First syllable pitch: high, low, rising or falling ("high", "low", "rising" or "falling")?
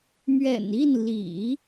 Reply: low